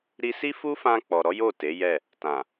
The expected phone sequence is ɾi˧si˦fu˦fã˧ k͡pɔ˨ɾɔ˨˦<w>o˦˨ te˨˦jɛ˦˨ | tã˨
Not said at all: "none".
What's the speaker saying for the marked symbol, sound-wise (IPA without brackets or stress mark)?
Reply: j